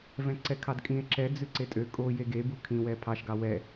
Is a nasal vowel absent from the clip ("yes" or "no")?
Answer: no